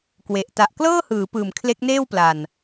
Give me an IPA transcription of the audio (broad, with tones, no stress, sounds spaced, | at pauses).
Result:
k w e˨˩ ʔ t a˨˩ ʔ k l ɤː˥˩ h ɯː˩˦ p ɯː˨˩ m kʰ l e˦˥ k̚ n eː˥˩ w p l a˨˩ n